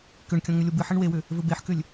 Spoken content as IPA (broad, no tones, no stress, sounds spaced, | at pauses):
k ʏ ɳ kʲ ɔ̃ ŋ ʏ lʲ o b ɨ ħ ɘ ɳ w e w ʏ | v ɘ b e ħ k ʏ lʲ